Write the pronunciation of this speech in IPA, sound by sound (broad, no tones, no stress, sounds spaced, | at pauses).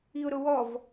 i ʊ̯ ɾ ʊ w ɔ v